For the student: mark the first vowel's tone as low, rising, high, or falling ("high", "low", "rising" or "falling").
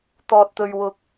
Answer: low